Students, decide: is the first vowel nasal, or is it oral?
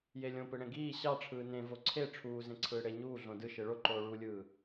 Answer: oral